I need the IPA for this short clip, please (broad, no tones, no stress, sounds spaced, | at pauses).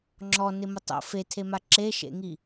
ŋ͡ǁ ɔ n ɪ m ʊ tˤ o̰ f e tʰ e m a ǁ e ʃ ḛ ŋ i